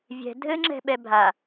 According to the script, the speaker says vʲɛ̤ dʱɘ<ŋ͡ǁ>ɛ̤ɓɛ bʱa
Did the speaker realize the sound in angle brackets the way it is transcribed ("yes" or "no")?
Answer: yes